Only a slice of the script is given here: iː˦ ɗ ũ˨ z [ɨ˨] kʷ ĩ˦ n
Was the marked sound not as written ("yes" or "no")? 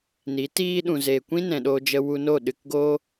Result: yes